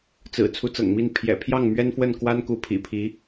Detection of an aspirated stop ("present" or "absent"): present